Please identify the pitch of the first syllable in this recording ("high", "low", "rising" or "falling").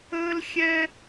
high